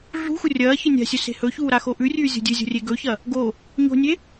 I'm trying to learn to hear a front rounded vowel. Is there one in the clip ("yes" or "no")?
no